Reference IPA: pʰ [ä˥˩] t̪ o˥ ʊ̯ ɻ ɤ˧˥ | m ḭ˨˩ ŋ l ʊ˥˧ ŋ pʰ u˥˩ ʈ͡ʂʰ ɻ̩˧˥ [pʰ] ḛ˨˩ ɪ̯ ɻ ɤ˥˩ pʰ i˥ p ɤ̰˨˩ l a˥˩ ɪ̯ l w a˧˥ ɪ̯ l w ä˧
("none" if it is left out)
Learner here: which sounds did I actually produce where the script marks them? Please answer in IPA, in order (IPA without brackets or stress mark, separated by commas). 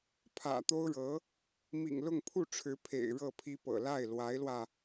ä̰˨˩, pʰ